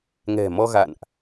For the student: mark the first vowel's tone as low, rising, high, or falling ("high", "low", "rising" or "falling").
low